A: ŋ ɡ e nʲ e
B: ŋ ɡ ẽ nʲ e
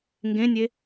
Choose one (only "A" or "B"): B